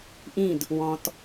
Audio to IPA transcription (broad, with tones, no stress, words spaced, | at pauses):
ʔĩ˦˨d | wɔ̃˨t